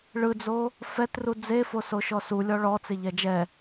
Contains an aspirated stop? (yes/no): no